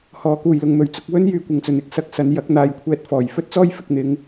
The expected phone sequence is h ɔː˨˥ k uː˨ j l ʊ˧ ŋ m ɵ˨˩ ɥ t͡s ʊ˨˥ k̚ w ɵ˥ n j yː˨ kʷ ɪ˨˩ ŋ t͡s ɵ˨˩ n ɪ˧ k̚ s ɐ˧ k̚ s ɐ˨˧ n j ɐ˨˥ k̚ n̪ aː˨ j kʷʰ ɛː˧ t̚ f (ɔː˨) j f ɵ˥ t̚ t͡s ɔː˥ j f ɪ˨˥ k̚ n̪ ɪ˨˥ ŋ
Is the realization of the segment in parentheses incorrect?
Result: yes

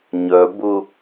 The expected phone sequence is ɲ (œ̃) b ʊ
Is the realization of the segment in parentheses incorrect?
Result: yes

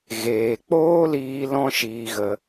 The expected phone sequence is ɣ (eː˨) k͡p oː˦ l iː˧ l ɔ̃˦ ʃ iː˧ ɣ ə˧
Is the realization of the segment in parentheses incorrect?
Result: no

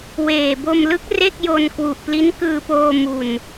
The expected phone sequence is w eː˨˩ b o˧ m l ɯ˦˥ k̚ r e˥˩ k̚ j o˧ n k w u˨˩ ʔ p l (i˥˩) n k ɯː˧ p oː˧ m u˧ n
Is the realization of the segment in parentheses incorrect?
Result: yes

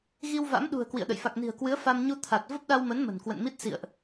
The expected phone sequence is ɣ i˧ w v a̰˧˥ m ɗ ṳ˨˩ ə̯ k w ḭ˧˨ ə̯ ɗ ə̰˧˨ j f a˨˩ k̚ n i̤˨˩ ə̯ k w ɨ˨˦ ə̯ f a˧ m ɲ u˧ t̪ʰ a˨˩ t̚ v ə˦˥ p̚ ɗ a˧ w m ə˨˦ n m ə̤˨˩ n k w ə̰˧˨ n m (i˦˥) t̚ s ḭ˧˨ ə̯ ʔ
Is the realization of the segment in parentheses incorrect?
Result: no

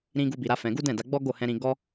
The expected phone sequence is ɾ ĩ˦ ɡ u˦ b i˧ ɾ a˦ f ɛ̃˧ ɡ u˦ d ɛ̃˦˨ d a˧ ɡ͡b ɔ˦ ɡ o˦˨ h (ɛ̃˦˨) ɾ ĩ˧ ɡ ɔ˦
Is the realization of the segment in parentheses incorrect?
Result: yes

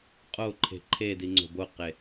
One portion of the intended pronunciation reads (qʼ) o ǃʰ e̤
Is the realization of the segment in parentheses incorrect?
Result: no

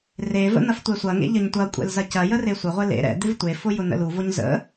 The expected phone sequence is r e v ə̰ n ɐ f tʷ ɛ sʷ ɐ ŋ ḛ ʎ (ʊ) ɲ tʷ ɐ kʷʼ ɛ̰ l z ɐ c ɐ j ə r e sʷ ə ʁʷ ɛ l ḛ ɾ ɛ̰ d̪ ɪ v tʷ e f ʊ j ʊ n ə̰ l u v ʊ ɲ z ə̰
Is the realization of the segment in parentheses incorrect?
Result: yes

